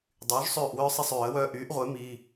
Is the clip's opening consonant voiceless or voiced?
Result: voiced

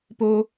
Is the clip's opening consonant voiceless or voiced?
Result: voiceless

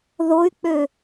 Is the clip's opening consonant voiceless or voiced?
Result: voiced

